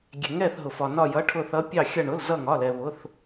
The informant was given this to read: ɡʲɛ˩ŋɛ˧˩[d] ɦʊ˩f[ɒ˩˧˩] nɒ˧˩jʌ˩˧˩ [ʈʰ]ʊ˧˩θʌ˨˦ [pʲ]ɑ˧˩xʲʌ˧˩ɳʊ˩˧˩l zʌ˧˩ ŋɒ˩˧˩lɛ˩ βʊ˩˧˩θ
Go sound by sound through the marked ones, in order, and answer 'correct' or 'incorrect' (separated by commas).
incorrect, incorrect, correct, correct